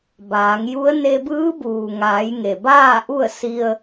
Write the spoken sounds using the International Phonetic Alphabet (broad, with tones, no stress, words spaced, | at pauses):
baː˩˧ŋju˧˥ə̯ ne˧bɯː˧˥buː˩ŋaː˩˧j ŋe˩baː˥˨ ʔu˥˨ə̯si˧ə̯